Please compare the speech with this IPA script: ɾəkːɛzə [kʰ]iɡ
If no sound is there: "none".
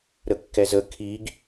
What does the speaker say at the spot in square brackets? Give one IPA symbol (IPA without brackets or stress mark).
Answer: kʰ